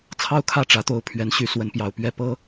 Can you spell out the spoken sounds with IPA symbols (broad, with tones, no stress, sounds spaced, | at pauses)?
t͡sʰ ɑ˥˨ ʊ̯ kʰ ä˥˨ ʈ͡ʂ ä˨˦ t̪ o˨˦ ʊ̯ pʰ ɥ ɛ˨˦ n ɕ y˨˦ s w ə˨˦ n p j ɑ˨˩ ʊ̯ p ɥ ɛ˥˨ p ɤ˦